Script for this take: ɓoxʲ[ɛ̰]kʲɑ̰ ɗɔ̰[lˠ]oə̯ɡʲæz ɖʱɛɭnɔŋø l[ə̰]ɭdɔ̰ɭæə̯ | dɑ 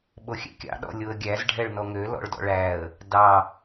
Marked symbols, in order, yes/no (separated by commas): yes, no, no